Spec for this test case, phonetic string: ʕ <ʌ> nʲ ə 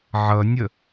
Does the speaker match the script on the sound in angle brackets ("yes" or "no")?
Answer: yes